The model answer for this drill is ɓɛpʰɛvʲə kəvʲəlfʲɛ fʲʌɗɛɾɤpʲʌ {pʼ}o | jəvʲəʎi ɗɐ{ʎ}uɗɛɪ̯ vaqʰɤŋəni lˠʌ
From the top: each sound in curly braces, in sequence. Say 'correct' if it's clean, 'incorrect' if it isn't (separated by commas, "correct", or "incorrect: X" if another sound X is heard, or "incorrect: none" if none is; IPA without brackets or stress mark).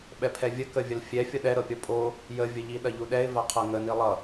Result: correct, correct